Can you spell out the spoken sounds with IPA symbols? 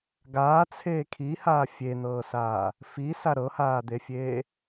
ɡ aː t͡sʰ eː kʰ i h aː fʲ e n̪ ɤː s aː | f i s a ɾ ɤ h aː d̪ e fʲ eː

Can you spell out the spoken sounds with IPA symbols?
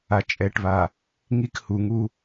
a˨ t͡ʃʼ ɛ˨ ʈ β a˨ | ŋ i˦ k h u˨ ŋ u˦

